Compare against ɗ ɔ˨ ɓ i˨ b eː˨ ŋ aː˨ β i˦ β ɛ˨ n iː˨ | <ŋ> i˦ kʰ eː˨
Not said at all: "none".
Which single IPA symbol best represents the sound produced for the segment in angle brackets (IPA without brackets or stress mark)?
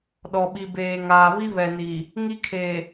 ŋ